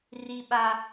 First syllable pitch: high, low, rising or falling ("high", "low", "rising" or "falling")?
high